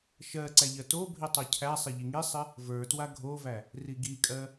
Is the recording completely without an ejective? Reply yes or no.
no